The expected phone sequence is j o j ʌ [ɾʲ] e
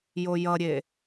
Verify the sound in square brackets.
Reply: correct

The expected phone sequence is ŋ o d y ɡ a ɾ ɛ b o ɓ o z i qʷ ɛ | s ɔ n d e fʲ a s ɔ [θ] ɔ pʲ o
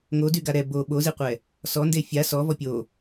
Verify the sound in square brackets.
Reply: incorrect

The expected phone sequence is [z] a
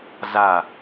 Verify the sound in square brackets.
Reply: correct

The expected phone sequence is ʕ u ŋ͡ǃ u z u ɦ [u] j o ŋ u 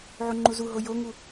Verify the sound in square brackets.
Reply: incorrect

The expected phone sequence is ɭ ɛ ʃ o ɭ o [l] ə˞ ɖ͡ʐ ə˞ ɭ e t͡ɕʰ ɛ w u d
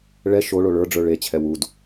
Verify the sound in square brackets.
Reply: incorrect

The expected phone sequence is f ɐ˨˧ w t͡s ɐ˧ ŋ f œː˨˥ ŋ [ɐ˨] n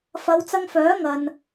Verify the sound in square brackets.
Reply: correct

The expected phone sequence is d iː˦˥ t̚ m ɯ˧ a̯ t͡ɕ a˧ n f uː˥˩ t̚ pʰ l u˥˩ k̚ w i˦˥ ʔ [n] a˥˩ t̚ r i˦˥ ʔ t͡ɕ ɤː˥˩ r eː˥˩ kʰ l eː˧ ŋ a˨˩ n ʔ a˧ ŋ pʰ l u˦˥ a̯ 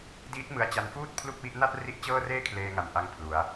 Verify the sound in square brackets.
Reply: correct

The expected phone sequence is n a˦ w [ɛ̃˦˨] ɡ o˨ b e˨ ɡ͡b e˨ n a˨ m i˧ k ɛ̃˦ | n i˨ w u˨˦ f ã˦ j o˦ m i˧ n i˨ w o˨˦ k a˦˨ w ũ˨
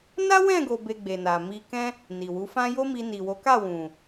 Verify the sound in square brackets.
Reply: correct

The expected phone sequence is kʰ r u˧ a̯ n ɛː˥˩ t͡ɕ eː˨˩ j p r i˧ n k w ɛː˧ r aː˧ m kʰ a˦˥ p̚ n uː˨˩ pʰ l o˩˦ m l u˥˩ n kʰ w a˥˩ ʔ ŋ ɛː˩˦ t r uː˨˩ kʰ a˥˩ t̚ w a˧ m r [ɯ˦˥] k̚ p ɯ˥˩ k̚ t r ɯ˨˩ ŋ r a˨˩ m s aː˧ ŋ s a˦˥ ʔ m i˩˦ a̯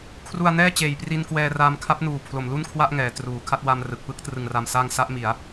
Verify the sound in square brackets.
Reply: incorrect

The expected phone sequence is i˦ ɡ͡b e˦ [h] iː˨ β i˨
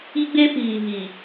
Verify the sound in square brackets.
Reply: incorrect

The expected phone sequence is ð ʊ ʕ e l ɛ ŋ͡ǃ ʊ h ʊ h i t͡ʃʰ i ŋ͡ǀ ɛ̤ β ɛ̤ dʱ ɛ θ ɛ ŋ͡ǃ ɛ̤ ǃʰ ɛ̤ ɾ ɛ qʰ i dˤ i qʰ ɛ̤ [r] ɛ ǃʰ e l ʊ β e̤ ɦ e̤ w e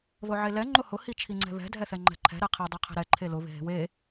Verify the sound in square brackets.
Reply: incorrect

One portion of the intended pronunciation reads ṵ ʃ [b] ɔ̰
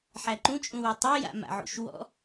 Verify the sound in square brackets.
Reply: incorrect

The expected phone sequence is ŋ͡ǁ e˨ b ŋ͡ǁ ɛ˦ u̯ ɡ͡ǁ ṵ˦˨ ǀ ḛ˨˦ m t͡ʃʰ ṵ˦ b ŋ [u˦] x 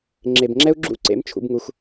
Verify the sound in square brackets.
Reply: correct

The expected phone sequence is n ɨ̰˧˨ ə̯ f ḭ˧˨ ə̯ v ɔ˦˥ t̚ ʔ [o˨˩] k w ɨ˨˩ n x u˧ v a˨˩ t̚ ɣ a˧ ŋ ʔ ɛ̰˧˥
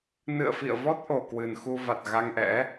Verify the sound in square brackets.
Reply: correct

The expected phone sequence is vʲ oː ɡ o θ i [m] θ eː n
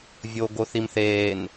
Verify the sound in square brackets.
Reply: correct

